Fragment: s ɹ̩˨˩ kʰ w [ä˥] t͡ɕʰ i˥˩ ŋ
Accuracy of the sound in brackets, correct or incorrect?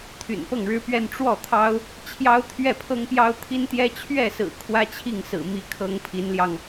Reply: correct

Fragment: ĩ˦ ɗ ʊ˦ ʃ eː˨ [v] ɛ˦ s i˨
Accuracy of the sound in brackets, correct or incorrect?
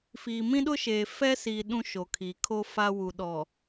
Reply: incorrect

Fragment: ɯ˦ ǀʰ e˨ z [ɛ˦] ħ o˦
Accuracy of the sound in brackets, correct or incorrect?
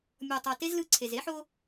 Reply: incorrect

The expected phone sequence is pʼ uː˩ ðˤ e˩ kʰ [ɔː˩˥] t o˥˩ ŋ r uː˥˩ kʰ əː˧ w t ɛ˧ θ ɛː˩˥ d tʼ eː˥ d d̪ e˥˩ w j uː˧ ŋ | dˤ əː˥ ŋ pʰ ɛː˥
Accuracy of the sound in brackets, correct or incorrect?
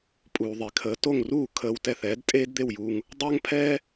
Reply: incorrect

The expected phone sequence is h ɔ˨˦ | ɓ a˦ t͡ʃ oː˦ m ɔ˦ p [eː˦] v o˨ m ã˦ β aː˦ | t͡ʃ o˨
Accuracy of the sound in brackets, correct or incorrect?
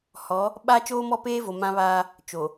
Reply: correct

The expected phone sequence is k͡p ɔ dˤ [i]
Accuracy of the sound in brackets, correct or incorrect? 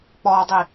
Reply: correct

